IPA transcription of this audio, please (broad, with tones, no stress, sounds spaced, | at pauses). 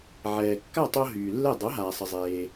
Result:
ʕ ɛː˩ kː a˥˩ tˤ o˧ ɦ yː˩ lː ɛ˥˩ dˤ o˩˥ ɦ aː˩ sˤ ə˩ zˤ eː˩